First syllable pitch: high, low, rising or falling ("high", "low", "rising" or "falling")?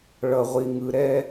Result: low